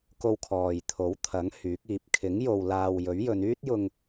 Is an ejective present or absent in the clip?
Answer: absent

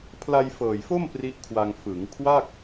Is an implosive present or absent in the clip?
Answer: absent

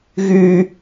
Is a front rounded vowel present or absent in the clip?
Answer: present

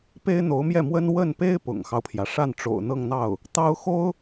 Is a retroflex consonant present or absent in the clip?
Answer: present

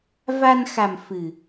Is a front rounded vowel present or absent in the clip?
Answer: absent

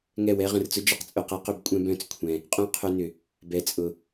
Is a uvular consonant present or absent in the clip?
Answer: present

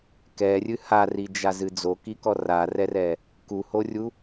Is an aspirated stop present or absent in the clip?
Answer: absent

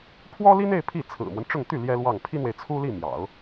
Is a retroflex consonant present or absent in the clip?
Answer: present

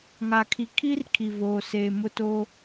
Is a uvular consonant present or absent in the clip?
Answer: absent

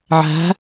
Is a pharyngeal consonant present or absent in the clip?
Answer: present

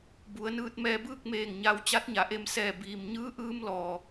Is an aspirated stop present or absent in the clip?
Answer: absent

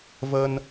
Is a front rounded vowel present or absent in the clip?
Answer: absent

